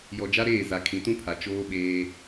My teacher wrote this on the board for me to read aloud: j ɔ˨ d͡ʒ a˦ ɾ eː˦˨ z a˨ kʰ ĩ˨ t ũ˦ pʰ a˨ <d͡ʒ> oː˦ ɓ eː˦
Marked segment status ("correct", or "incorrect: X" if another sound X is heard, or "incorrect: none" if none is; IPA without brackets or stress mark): incorrect: t͡ʃ